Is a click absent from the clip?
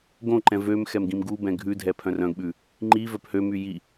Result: no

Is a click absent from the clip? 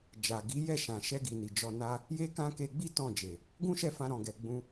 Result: yes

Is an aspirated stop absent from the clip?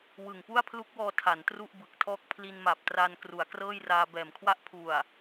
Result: no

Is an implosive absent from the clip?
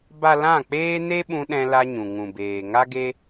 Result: no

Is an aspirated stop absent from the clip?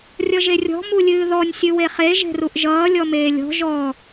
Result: yes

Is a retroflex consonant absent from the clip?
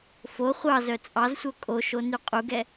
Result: yes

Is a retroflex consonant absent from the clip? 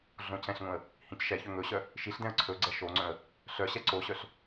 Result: yes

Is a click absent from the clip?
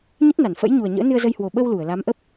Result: yes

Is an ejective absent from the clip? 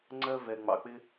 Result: yes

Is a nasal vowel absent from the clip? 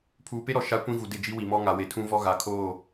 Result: no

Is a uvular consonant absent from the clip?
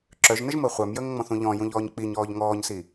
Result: no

